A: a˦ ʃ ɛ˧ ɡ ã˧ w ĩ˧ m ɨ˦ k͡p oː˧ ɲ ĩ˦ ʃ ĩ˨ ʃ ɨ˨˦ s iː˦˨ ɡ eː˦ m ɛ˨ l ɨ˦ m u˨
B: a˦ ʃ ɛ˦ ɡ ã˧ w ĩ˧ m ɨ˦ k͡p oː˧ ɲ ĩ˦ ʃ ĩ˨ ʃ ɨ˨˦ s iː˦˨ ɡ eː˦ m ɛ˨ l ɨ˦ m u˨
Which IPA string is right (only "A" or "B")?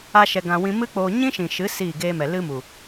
A